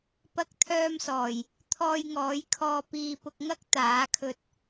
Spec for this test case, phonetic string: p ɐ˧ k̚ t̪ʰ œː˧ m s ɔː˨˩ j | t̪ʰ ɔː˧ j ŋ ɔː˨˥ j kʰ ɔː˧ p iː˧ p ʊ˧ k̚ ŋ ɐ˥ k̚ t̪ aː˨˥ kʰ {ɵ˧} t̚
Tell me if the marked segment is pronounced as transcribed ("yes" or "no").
yes